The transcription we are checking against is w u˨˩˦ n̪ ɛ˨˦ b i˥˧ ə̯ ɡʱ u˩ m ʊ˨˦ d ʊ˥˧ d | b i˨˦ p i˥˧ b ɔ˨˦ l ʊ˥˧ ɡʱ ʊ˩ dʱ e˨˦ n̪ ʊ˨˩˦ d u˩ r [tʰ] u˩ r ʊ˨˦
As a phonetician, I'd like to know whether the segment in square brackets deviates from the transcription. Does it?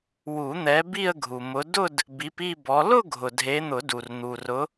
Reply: yes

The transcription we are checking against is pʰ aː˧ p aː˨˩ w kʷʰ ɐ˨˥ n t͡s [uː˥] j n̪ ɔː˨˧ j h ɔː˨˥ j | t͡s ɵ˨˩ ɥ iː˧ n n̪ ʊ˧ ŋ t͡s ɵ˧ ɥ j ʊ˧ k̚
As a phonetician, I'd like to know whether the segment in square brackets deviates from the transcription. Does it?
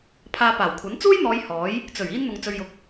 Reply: no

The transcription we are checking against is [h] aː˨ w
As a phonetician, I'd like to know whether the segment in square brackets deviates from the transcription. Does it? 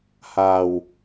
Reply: no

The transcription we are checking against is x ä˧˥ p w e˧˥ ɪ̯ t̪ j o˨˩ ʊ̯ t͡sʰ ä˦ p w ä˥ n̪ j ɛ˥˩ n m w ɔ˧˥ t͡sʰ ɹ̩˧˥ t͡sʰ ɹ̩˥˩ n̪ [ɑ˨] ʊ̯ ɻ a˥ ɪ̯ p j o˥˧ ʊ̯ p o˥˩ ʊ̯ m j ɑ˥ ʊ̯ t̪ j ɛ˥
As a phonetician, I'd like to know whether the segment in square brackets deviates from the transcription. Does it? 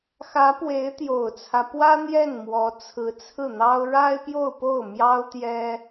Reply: yes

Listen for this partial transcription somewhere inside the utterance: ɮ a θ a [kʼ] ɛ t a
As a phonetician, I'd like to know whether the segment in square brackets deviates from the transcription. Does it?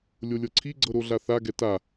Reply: yes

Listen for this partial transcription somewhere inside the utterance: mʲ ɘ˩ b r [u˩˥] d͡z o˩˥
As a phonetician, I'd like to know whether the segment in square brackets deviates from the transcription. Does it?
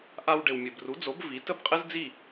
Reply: no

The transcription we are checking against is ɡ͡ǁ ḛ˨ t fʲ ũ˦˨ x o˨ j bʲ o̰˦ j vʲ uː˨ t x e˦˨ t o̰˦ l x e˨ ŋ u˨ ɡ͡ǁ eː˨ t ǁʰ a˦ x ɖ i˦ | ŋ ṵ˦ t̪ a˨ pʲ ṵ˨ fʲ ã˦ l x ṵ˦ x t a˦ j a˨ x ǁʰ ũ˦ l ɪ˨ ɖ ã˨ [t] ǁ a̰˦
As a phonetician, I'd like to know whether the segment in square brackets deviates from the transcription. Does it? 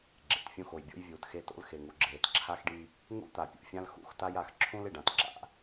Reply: no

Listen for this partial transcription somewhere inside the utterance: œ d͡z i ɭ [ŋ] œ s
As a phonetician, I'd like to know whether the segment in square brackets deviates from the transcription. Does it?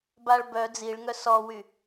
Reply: no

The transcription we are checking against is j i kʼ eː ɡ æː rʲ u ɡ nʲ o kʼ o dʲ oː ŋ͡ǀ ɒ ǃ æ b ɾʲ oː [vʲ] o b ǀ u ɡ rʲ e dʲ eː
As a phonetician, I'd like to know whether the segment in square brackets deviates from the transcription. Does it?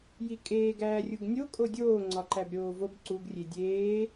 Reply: yes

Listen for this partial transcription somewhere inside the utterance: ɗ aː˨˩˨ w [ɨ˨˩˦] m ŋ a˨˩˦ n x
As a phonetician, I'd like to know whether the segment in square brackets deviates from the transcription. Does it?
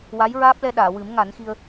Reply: no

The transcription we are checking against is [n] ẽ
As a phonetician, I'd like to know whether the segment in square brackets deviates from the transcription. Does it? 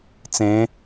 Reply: yes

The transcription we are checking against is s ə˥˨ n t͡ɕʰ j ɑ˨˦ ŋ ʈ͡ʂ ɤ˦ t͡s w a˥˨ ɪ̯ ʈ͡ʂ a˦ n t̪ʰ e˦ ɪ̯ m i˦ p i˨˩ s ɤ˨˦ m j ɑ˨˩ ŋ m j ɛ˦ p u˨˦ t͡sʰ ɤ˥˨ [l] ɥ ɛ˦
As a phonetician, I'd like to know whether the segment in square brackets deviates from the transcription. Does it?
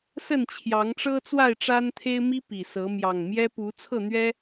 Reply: yes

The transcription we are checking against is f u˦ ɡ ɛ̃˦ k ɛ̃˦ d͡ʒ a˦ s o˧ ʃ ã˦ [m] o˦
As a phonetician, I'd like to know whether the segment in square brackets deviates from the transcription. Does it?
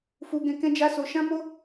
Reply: no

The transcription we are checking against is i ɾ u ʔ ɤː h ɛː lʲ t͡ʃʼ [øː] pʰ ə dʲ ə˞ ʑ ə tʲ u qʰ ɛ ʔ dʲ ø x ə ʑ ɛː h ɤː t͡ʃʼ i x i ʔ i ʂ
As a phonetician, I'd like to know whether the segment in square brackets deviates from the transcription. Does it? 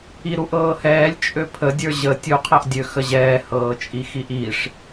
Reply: yes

